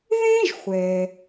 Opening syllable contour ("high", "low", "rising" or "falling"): high